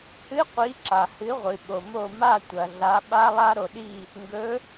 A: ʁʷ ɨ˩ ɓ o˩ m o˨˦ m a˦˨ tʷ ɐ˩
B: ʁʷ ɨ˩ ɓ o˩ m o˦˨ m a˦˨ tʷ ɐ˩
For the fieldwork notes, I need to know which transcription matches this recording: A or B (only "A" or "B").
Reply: B